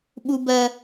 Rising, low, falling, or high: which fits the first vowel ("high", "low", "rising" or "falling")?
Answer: high